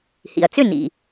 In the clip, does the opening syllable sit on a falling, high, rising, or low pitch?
low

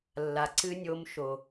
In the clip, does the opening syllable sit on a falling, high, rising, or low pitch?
low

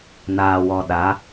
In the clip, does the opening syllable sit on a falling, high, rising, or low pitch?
low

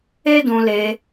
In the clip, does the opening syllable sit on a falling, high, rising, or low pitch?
high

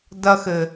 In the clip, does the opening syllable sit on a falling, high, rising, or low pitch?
high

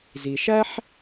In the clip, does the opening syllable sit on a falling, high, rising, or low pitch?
low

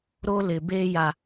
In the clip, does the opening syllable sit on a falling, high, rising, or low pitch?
high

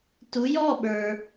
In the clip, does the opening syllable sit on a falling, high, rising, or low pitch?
rising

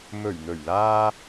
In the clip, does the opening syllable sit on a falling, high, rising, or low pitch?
low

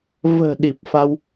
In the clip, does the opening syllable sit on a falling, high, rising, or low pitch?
low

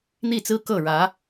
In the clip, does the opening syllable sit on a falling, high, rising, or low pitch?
falling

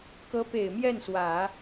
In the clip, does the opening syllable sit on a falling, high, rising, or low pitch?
rising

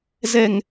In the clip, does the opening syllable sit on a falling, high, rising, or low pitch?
low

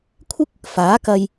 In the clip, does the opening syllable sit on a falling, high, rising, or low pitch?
high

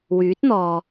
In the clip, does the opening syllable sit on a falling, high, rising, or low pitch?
rising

